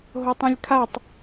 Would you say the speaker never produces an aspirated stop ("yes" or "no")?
no